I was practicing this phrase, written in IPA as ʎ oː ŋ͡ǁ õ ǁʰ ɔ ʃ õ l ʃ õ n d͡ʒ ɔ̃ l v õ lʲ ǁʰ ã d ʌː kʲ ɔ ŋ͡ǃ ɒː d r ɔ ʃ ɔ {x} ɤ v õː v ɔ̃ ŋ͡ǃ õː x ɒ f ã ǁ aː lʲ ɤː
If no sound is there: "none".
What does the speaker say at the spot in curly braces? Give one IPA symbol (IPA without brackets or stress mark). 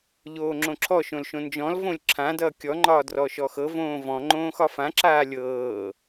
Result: x